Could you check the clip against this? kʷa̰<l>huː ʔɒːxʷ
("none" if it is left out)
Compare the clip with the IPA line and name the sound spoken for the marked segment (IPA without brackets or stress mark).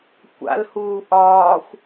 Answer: l